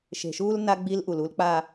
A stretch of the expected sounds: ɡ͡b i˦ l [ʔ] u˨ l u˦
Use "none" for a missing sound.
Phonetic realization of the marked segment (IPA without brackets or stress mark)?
ʔ